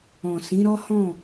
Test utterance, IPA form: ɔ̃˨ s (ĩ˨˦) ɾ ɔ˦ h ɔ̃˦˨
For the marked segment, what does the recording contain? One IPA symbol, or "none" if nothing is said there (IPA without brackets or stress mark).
ĩ˨˦